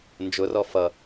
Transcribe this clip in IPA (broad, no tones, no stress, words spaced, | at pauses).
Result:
nd͡ʒʊrɔ fʌ